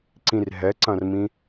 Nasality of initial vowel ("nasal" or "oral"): nasal